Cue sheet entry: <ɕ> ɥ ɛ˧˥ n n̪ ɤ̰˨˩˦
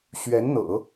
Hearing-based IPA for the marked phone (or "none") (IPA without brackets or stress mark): ɕ